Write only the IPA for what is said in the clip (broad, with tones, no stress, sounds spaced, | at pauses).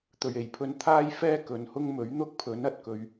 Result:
t̪ ɵ˨˩ ɥ e˨˩ j pʰ ɵ˧ n t̪ʰ aː˥ j f ɛː˥ k ɵ˨ n h ʊ˥ ŋ m ɵ˨˥ ɥ n̪ ʊ˥ k̚ pʰ ɵ˨˥ n ɐ˨ t̚ k ɵ˧ ɥ